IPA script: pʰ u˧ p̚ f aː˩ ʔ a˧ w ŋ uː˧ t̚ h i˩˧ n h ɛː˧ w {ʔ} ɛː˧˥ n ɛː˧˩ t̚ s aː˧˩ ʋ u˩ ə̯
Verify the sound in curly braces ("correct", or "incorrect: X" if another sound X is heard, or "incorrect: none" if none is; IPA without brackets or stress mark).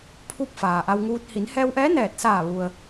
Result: correct